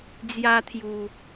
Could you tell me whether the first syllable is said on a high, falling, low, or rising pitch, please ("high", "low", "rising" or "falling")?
high